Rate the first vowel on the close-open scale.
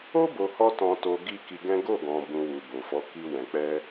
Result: mid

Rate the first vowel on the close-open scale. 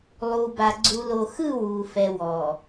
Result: close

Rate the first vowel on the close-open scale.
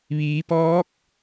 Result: close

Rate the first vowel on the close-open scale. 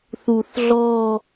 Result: close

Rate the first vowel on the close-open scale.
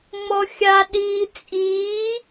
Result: mid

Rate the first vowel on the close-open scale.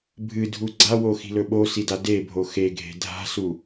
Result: close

